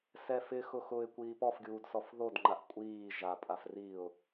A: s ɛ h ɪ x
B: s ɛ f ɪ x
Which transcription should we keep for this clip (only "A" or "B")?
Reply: B